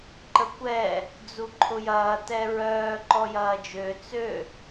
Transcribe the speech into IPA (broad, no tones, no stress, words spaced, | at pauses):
ǃəkʷɛː | d͡zuǃʰʊjɐː tɛɹœː ǃɔjɐːd͡ʒø t͡sø